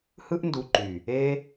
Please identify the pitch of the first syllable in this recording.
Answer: high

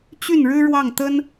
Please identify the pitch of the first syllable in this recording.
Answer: falling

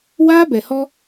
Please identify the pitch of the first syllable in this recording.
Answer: high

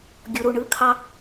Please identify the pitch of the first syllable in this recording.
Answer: low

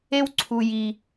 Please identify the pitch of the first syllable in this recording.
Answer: high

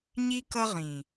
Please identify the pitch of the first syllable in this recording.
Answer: high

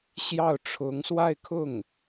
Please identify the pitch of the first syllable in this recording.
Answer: falling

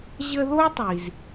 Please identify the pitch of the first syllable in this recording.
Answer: high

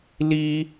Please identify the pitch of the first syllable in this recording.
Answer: high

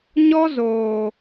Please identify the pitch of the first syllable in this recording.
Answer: high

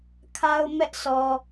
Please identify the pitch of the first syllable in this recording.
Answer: high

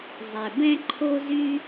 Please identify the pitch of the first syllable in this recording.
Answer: low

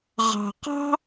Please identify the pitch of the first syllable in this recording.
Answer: low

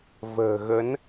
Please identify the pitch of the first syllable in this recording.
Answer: low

